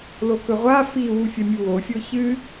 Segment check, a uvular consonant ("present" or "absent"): present